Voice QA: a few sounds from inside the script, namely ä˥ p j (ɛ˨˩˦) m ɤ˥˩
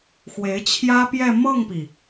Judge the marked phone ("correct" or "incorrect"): incorrect